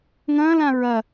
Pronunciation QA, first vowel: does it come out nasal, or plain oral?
nasal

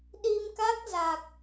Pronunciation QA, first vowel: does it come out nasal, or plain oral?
oral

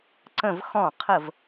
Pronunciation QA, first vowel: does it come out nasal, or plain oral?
nasal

